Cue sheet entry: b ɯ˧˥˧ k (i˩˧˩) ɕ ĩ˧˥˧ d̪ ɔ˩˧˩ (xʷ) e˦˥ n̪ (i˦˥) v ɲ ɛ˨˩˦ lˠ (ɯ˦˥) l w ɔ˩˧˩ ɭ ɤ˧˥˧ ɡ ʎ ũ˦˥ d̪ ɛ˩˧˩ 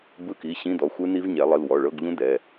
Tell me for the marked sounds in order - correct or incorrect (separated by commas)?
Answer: correct, correct, correct, incorrect